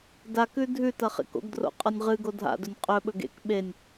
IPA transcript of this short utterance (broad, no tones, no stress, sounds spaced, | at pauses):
d a k ʉ dʱ ʉ t ɐ χ ḛ k o̰ ɡ d r o̰ qʼ ɐ nʲ ʁ ɨ ɡ o dʱ a̰ d ɵ nʲ qʼ ɵ ɓ ɵ ɡ ḛ k ɓ e nʲ